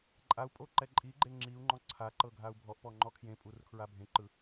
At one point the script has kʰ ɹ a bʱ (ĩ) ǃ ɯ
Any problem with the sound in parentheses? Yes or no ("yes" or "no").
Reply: yes